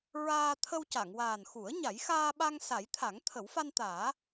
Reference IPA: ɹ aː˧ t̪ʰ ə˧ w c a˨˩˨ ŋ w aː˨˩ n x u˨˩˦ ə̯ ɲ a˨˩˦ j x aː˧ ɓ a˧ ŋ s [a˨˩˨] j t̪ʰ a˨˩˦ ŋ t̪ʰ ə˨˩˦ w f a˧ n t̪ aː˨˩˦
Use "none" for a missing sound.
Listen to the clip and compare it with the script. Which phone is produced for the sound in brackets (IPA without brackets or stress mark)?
a˨˩˦